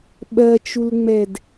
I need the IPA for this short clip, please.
ɓɜt͡ʃulŋ͡mɛd

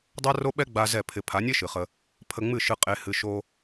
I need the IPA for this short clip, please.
dˤa˦ro˦ɓɛ˦ ɡ͡ba˧ zɛ˦˨pʰɪ˧ pʰa˨˦nʲe˦ʃɨ˨ χə˧ | pʰə˧ŋ͡mɨ˦˨ʃɨ˧ qʼe˧hɨ˧ ʃo˧

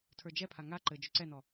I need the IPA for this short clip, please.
tʰə˞d͡ʒɛpʰa ŋa ǃɘ d͡ʒʏǀɛnɔ

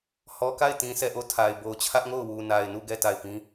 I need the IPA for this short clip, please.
hɔ˨ka˦˨ɪ̯tĩ˨ sɛ˦˨ʔo˦˨tʰa˨ɪ̯ bo˨ʊ̯t͡ɕʰä˦ʔŋo˦˨ʊ̯ wu˨na˨ɪ̯nu˦˨ɡɛ˦˨ ta˦˨ɪ̯pĩ˦

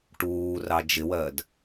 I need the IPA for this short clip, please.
ʈuːrɑ d͡ʒɪwɜd

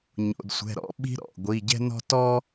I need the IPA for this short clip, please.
ɲo̰˩˧˩dsʷɛ̤˩˧˩ɾɔ̰˥ɓi̤˥ ɾɔ̰˩˧˩ ɡʷi˩˧˩ɟɛ̤˥nɔ̤˥ tɔ˥

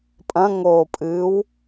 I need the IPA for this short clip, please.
pʼɐ̃ŋoːpʼɨːw

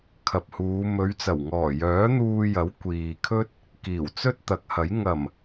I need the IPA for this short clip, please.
kʰɐ˨p̚huː˨˧ mɵ˨˧ɥt͡sɐ˨˩w ŋɔː˨˩jœː˨˥n̪uː˧jɐ˨˥w kʷiː˨kʰɵ˥t̚ | kiː˨˩wt͡sɵ˥t̚t̪ɐ˨˥k̚hɐ˨˥j ŋɐ˨˩m

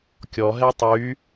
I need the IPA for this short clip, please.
kʲɔɦɛ tˤy

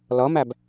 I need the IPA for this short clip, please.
lʌmæb

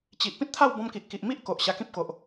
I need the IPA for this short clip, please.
t͡ɕi˨ʔ pĩ˦t̚t̪ʰa˥˧wbɔ̃˧m ki˨ʔki˨ʔmi˦ʔ ko˨ʔɕa˧kĩ˦p̚ko˨ʔ

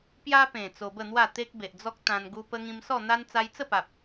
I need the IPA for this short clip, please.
pja˦pẽ˨˩ t͡so˧bə˥˧n̪wa˥˧ t̪e˦k̚be˨ʔd͡zɔ˦k̚ t̪ã˧n ɡu˧pə˧ŋĩ˧msɔ˥˧ n̪a˦n t͡sa˧jt͡sə˥˧pa˨p̚

